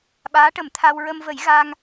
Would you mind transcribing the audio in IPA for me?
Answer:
ɓaː˧˥ʈə˨˩˦mt̪ʰa˧w ɹə˧mvə˨˩˦j ɣa˧ŋ

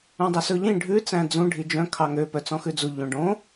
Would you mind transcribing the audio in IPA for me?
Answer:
ũdˤøsɵʎĩ ɖʱʉ t͡sæ̃d͡zũ ɖʱid͡ʒœ̃ kʰɑŋø pœt͡sɔ̃xʉd͡zu ʎõɖõ

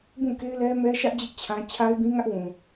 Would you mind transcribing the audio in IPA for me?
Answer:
bũ˦˨ke˦ɪ̯lɛ˦ mɛ˦ʃä˦ʔd͡ʑɪ˦ʔ t͡ɕʰã˦ t͡ɕʰa˦ɪ̯bĩ˦ŋä˦ʔwũ˨

